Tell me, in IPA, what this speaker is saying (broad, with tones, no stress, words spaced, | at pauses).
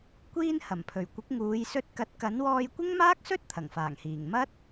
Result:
kʷiː˧n hɐ˨˩mpʰɵ˨˩ɥkʷɪ˨˥k̚ ŋuː˨˧jsɵ˧t̚kɐ˨˥t̚ kɐ˨˥nwɔː˧j kʷɪ˥ŋmaː˥k̚sɵ˥t̚ t̪ʰɐ˨˩ŋfaː˨˩ŋhiː˨˩ŋ mɐ˥t̚